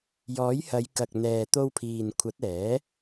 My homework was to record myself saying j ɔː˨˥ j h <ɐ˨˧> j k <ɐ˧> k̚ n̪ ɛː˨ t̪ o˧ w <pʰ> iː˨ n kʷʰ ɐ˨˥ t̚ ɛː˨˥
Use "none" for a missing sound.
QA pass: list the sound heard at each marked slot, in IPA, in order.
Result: ɐ˨˧, ɐ˨, pʰ

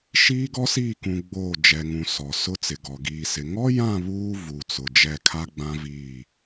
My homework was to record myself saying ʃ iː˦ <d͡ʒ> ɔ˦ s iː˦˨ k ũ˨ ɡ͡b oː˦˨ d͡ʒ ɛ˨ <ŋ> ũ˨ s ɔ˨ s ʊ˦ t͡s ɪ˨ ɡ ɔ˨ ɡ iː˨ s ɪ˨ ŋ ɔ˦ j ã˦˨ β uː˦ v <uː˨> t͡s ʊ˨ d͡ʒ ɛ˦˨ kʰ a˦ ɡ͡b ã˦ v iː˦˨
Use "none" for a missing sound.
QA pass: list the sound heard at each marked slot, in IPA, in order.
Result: ɡ, ŋ, u˨

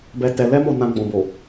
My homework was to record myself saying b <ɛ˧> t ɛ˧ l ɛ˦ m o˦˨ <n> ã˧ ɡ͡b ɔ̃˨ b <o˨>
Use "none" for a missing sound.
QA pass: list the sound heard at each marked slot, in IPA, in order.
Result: ɛ˧, n, o˨

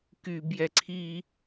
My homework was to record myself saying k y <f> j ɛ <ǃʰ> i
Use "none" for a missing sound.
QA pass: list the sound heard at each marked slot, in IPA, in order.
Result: b, ǀʰ

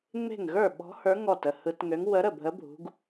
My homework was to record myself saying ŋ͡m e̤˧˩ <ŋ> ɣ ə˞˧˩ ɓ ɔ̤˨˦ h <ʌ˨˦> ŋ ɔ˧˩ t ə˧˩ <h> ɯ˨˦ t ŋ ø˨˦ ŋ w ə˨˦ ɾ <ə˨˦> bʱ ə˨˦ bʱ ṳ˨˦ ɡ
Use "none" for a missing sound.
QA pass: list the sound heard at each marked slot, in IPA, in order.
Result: ŋ, ə˞˨˦, h, ə˧˩

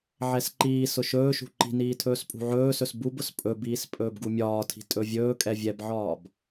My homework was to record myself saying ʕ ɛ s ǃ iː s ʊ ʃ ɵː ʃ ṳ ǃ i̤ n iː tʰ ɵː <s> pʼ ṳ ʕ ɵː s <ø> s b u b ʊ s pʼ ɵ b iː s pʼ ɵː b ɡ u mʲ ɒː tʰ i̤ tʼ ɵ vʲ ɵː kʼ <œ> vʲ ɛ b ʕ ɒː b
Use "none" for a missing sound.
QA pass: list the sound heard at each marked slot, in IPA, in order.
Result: s, ɵ, ɛ

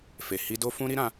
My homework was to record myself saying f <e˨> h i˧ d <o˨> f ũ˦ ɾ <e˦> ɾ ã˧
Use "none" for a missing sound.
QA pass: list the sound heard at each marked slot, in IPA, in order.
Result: e˨, o˦, i˦

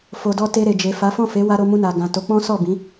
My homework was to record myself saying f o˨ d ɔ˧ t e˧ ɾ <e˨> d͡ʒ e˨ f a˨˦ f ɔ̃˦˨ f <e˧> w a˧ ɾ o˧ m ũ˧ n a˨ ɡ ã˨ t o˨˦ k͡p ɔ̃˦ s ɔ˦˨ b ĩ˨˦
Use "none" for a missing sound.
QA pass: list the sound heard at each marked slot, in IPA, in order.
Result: e˨, e˨˦

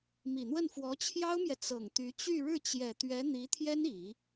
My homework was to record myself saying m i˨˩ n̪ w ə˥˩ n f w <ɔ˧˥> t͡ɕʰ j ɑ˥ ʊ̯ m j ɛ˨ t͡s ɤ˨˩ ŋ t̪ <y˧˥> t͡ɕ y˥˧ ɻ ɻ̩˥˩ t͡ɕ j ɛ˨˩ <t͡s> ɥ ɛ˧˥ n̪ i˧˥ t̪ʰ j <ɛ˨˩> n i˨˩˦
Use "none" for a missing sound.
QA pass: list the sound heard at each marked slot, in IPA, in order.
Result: ɔ˧˥, y˧˥, t̪, ɛ˥

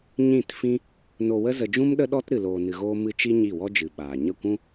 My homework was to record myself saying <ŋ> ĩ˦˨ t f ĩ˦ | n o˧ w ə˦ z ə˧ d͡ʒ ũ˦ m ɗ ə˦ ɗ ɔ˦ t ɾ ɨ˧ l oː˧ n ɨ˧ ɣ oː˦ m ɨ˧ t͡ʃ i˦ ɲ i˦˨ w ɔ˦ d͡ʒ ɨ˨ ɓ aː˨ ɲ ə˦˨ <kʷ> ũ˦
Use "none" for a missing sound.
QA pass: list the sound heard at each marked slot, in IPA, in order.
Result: ɲ, kʷ

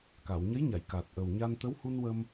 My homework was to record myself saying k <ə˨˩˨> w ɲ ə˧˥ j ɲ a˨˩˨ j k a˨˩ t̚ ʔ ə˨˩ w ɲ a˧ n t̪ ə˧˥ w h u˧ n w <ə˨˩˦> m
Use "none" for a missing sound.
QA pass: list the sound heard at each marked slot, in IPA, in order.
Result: a˨˩˨, ə˧

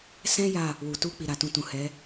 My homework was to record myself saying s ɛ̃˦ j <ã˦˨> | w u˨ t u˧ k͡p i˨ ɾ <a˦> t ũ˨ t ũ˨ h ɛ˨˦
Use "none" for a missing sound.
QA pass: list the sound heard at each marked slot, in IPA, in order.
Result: a˦˨, a˨

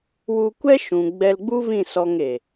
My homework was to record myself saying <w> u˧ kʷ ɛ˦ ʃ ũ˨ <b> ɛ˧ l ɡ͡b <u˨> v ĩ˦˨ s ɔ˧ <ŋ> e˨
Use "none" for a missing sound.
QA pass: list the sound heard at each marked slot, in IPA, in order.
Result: w, ɡ͡b, u˦, ŋ

